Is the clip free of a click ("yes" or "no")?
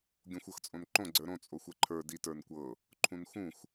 no